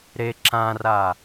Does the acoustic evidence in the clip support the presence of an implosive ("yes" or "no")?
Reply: no